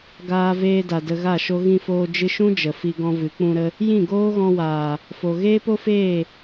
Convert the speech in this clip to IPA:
ɡ aː˧ v eː˧ d a˨ d ə˧ ɣ a˦˨ ʃ o˦ ɣ ĩ˧ f oː˧ d͡ʒ ɨ˧ ʃ ũ˦ d͡ʒ ə˨ f i˧ ɡ ɔ̃˧ v ɨ˨˦ k͡p ũ˧ ɾ ə˧ | j ĩ˦˨ ɡ oː˦ ɣ ɔ̃˧ w aː˨ | f o˨ ɣ eː˦ p o˦ f eː˦˨

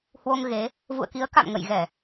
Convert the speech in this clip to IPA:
h w o˧ ŋ ɣ e˨˦ | v ṵ˧˨ ə̯ k i˨˦ ə̯ k a̰˧˨ m ŋ ə̰˧˨ j ɣ ɛ˧˩˨

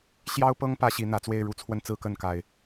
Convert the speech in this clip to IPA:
ɕ j ɑ˦ ʊ̯ p ɤ˦ ŋ p ä˦ ɕ i˨˦ n̪ ä˨˦ t͡s w e˥˨ ɪ̯ ɻ u˨˦ t͡sʰ w ə˥˨ n t͡s ɹ̩˥˨ k ə˥˨ n k a˨˩ ɪ̯

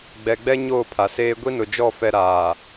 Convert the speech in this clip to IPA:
ɡ͡b ɛ˨ ɡ͡b ɛ˦ ɲ oː˦˨ pʰ a˨ s eː˦ ɡʷ i˦ n ʊ˨ d͡ʒ ɔ˦˨ f ɛ˦ ɾ aː˨

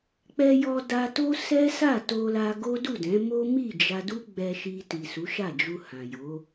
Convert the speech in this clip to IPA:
k͡p ɛ˧ j ɔ˧ d a˧ t o˦ s ɛ˦ s a˦˨ t o˧ l a˧ ɡ o˦ d u˦˨ d ɛ̃˨˦ m o˦ m i˦˨ d͡ʒ a˧ d u˦ ɡ͡b ɛ˧ ʃ i˧ t i˨ s u˨˦ ʃ a˦˨ d͡ʒ u˧ h ã˨ j o˨˦

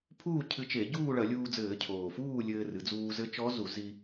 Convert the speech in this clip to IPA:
pʰ uː˥˨ cʰ ɨ˧ t͡ʃ e˧˩˧ ɟ uː˥˨ ɭ ɐ˧˩˧ lʲ uː˧ d͡z ɘː˧˩˧ cʰ oː˨˩ f uː˥˨ lʲ ɘː˧ r ɨ˩˧ d͡z uː˧ z ɘ˧˥ t͡ʃ ɔ˧˥ z u˧˩˧ z i˧

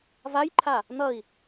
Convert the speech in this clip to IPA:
v a j ǃʰ a | n̪ ʌ i̯

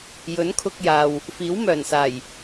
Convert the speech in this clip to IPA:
j ɵ˨˥ n kʰ ʊ˧ k̚ j aː˨ w | f iː˨˥ w m œː˨˩ n s aː˨˩ j

